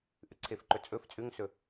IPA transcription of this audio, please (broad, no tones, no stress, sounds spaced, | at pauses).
ʔ ʉ ǀʰ e f ǃ ɵ t͡sʼ ɵ f t͡sʼ ʉ ŋ s ɵ